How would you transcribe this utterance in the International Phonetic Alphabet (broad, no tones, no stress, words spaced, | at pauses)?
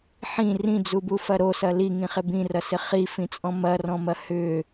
ħĩ rĩd͡zubufɐ ɾosɐ liŋĩχɪ bĩrɐsɪ χifĩt͡sʼɔ̃ mɐrɔ̃mɐ hʏ